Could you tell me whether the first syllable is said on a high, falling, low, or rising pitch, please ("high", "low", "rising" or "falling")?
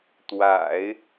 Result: low